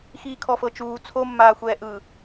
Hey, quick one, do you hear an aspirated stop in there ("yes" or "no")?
yes